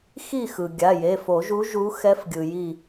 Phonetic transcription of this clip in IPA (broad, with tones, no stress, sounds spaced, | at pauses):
x i˥˨ x ɯ˩ ɡʲ a˩˧˩ j e˩˧˩ f o˨˩˦ ʒ u˧˥ ʒ u˧˥ x ɛ˧˥ f ɡʲ ɯ˩ j i˧˩